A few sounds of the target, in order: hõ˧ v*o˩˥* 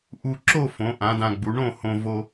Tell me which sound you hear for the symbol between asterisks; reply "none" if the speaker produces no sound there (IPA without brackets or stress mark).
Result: o˧